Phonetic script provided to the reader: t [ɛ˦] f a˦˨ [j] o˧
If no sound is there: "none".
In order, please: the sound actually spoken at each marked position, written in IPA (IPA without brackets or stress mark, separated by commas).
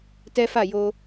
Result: ɛ˦, j